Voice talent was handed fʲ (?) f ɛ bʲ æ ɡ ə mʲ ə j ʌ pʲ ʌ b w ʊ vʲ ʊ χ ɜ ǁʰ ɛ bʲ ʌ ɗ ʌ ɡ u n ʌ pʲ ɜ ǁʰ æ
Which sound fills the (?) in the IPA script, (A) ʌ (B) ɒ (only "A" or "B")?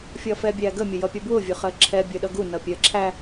B